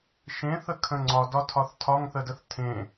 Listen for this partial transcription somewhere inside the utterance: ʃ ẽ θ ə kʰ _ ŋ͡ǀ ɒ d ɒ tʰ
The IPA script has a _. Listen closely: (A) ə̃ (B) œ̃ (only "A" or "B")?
A